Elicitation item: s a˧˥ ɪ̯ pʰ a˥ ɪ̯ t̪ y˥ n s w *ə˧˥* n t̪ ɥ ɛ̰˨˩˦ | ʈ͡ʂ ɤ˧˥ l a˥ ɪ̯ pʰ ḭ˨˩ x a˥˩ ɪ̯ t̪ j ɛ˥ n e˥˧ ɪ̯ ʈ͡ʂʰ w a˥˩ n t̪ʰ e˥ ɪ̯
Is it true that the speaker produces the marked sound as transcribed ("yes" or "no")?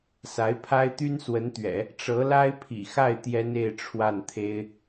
yes